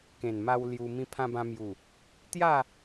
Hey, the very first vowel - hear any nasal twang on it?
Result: yes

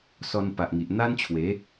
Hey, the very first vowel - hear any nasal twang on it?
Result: no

